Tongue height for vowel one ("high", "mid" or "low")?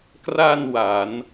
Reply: low